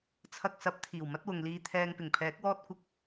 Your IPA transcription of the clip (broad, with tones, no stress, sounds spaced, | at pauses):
t͡sʰ ɐ˧ k̚ s ɐ˨˥ p̚ t̪ʰ iː˨˩ w m ɐ˥ t̚ w ʊ˨ ŋ l iː˧ t̪ʰ ɛː˧ ŋ p ɪ˨˩ ŋ pʰ ɛː˨˥ k̚ w ɔː˥ t̚ kʷ ɪ˧ k̚